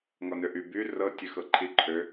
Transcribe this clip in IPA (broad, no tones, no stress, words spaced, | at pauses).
ŋɔnøʔy by rɤ tʲøxɤǃʰi ǃʰø